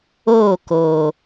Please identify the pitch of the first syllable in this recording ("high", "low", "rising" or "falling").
falling